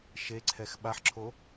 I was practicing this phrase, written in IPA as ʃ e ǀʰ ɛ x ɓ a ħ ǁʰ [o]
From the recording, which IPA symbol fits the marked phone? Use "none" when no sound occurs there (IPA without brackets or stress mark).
o